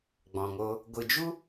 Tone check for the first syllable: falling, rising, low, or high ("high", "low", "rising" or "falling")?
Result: low